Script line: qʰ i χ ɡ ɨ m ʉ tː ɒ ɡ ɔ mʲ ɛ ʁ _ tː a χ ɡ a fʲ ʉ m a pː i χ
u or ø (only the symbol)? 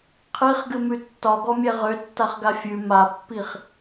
ø